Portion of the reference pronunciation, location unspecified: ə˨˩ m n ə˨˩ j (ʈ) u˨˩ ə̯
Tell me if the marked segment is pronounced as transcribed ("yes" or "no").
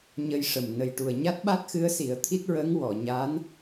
yes